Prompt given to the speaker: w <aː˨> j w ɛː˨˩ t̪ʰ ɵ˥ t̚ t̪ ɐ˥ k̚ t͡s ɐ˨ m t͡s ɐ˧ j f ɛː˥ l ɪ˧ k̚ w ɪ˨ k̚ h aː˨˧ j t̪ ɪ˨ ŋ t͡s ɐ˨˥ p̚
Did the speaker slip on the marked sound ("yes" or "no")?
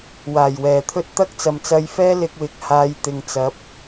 yes